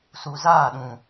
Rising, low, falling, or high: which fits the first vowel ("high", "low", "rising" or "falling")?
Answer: low